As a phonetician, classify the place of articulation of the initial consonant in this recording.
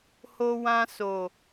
glottal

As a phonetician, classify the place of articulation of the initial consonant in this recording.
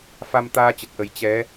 labial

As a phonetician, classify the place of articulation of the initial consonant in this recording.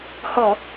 glottal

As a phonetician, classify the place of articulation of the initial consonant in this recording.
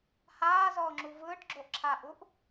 glottal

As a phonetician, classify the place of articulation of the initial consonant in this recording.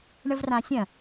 retroflex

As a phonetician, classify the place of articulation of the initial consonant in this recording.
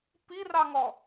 labial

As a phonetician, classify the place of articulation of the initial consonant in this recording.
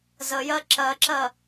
alveolar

